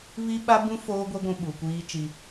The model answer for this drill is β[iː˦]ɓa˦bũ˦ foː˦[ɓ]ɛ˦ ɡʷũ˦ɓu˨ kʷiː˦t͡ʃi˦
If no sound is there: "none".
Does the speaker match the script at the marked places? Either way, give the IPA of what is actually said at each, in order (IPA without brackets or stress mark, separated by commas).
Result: i˦, ɡʷ